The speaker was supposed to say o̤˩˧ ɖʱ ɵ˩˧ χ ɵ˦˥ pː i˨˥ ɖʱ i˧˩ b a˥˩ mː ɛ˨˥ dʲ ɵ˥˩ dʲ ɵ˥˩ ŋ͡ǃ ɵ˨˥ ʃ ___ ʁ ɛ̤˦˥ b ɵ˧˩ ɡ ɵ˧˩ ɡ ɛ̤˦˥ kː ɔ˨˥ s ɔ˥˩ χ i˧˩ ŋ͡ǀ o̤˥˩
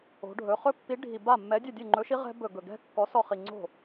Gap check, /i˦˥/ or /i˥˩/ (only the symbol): i˦˥